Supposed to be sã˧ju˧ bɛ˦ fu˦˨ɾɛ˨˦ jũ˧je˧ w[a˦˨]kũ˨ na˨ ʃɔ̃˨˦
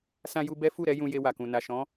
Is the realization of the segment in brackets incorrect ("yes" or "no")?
yes